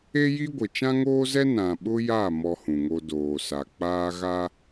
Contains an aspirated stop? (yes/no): no